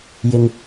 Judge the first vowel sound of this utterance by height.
high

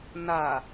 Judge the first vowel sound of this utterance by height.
low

